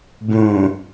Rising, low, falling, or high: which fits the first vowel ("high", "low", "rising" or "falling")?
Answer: low